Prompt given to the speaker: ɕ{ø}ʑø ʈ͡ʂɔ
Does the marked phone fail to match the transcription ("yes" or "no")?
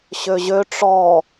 no